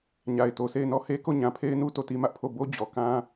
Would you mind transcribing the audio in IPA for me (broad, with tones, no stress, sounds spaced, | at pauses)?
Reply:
ɲ a˨ ɪ̯ t o˨ sʰ e˦˨ ɪ̯ n ɔ˦˨ h e˦ k o˦˨ ɲ ã˨ pʰ e˦ ɪ̯ n u˦ t o˦˨ t i˦ m ä˦ ʔ pʰ o˦˨ b o˦ d͡ʑ ɔ˨ k ã˦